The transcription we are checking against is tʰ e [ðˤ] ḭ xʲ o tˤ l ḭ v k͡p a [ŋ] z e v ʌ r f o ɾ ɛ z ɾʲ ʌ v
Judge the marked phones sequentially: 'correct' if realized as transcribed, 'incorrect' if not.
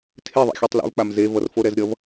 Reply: correct, incorrect: m

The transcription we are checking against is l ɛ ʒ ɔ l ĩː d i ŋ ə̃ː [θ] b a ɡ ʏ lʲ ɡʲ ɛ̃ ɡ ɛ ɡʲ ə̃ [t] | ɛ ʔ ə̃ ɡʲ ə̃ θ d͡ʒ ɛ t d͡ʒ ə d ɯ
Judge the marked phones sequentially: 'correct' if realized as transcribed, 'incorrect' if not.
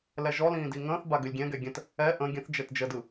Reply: correct, correct

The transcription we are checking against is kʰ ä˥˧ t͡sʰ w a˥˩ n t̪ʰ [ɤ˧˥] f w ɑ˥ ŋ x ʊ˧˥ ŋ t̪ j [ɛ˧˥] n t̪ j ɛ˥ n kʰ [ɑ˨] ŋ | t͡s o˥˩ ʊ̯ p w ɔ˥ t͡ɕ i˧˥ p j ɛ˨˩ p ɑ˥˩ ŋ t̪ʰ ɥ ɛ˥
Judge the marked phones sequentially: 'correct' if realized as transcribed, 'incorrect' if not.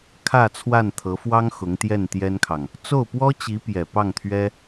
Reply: correct, incorrect: ɛ˥˩, correct

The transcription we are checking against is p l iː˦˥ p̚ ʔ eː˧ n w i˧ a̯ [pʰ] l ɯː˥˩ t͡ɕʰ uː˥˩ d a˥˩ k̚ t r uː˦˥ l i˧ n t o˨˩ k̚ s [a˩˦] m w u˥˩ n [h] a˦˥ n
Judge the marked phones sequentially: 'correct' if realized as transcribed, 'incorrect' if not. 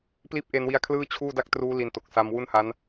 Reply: incorrect: kʰ, incorrect: a˧, correct

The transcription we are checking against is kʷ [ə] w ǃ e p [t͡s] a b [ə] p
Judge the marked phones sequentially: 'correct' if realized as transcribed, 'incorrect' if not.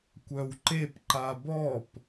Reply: incorrect: œ, incorrect: ǃ, incorrect: ɔ

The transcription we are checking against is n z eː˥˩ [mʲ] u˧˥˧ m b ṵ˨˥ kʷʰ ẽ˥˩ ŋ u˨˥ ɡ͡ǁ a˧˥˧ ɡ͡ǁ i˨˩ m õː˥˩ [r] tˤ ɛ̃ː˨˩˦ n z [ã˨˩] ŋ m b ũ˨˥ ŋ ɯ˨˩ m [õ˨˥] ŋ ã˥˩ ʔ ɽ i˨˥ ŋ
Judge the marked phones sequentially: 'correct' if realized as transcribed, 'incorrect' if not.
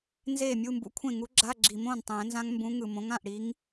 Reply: correct, incorrect: n, incorrect: ã˦˥, correct

